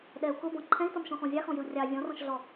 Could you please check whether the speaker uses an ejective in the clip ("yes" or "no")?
no